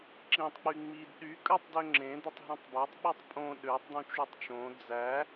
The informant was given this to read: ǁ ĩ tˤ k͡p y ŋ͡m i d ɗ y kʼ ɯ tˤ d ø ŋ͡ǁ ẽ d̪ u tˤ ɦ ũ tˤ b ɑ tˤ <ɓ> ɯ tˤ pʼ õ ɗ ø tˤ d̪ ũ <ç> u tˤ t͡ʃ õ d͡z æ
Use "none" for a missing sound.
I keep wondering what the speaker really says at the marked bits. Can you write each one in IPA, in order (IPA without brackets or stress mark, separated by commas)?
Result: ɓ, t͡ʃ